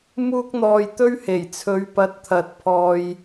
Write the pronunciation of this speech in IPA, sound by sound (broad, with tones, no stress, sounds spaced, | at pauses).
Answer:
m uː˥ k̚ n̪ ɔː˧ j t̪ ɵ˥ ɥ h e˨˩ j t͡sʰ ɵ˨˧ ɥ p ɐ˨˥ t̚ t̪ʰ ɐ˨ t̚ pʰ ɔː˨ j